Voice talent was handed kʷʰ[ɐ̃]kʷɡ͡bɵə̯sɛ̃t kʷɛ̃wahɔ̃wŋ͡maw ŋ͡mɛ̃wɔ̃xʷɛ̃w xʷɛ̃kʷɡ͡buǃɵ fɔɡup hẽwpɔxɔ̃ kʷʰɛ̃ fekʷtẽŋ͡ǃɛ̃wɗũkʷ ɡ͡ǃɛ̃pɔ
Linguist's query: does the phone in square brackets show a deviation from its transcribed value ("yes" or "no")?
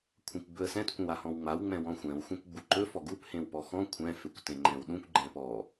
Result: yes